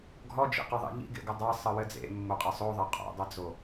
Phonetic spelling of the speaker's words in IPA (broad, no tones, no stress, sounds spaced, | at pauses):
ɡʱ ɔ d͡ʒ ḭ q a ðˤ ḭ ʎ ḭ ɡ ḛ ɡ ɘ dˤ a sˤ ɘ w ɘ d͡z ḛ mː o qʼ ɐ sˤ o ðˤ ɐ qʼ o̰ dˤ ɘ d͡z o